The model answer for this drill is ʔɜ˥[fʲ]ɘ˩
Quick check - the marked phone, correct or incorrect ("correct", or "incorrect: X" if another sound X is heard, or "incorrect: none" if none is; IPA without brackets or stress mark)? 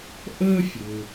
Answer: correct